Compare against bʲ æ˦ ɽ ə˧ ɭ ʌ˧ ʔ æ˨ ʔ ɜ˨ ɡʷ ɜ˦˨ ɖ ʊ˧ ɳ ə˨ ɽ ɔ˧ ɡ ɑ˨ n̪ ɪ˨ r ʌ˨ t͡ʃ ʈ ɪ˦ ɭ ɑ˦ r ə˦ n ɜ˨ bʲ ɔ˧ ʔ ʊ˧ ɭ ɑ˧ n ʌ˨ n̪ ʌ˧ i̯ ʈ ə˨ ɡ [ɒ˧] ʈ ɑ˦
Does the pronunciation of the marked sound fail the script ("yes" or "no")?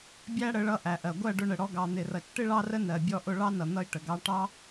yes